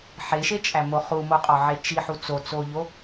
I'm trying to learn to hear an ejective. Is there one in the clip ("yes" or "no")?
yes